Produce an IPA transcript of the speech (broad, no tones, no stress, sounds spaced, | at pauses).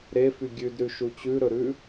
ɾ e f y ɡʲ ʉ d ɾ ʉ ʃ u t͡ɕ ʉ ɾ ɵ ɾ ʉ